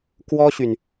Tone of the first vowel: high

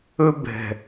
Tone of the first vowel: high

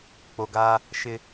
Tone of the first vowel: low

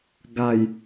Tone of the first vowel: falling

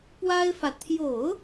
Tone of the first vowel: high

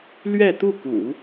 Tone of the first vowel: falling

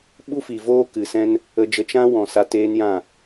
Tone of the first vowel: high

